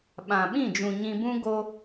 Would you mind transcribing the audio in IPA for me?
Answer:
ɓ ã˨ ɓ ĩ˦˨ d͡ʒ ũ˨ ɲ ĩ˧ b ũ˦ ɡ o˧

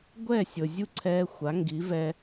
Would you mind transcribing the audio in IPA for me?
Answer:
ɡʷ ɛ˥˩ sʲ ɤ˩ zʲ u˥˩ ǀʰ ɛː˧ xʷ a˩˥ ŋ ɡ i˩˥ v ɛ˧

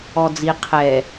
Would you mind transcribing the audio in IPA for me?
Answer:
ɔ d͡z i qʰ ɛ

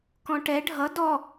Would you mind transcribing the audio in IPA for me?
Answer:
k ɔ̃ ʈ ɛ ɖʱ ʌ d ɔ

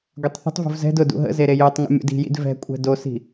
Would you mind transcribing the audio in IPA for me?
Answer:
ɡʷ ɛ tˤ θ ə̤ tˤ v ṳ v z ɛ̤ d ʊ d ṵ ɦ ə̰ z e ɾ e j ø tˤ ŋ ə̰ mʲ ṵ d i̤ j ḭ d v ɛ̤ kʷʼ ɛ̤ d o s i̤

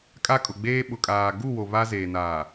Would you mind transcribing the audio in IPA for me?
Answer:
kʼ a˦ kʼ ʊ˨ ɡ͡b eː˦ ɓ ʊ˨ kʼ aː˨ ɡ u˦˨ w o˨ β a˦ z eː˨ n aː˨

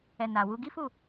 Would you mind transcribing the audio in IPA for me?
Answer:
ɛ˨ n a˨ w u˧ ɡ i˦ f u˦˨

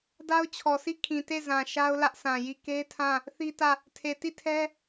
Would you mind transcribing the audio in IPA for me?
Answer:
d a˦ ʊ̯ t͡ɕʰ ɔ˨ s i˦˨ kʰ ĩ˨ t e˦˨ z ã˨ ʃ a˦ ʊ̯ l ä˦ ʔ s ã˨ j i˦˨ k e˦ tʰ ã˦˨ | θ i˦ t ä˦˨ | tʰ e˨ t i˦˨ tʰ ɛ˦

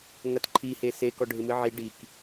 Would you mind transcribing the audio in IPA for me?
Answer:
ŋ ɐ t ǃʰ i h e s e k ɔ ɖʱ ɪ m ɨ ʕ i ɖ i k

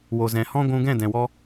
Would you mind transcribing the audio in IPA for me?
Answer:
w o˨ z ɛ̃˨ h ɔ̃˦ ɡʷ ũ˧ ɡ ɛ̃˦˨ d ɛ̃˨ w ɔ˧

